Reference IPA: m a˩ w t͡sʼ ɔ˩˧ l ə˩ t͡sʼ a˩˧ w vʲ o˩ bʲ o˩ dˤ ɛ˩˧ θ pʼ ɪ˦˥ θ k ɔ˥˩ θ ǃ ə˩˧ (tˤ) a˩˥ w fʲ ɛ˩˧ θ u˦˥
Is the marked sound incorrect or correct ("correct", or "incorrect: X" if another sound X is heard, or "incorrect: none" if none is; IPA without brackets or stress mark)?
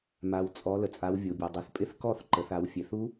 incorrect: θ